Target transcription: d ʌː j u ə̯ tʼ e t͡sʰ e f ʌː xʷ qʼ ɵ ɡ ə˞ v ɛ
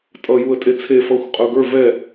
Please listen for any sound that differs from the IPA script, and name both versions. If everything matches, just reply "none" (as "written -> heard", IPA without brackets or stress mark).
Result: d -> tʼ